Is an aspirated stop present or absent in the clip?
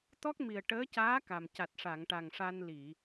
absent